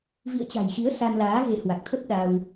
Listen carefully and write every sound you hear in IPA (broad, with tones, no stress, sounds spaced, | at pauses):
v ḭ˧˨ ə̯ t͡ɕ a̤˨˩ j x i˨˦ ə̯ s a˧ n l aː˨˦ ɣ e˨˦ h w a˨˩ k̚ t̪ʰ ə˦˥ p̚ ɗ a˧ w